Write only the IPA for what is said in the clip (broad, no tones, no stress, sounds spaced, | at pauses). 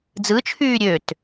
d͡z ɯ t͡ʃʰ yː ɾʲ ø t